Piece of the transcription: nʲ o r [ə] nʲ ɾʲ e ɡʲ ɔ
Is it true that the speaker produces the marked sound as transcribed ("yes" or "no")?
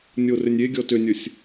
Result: no